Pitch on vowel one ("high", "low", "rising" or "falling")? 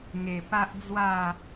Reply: low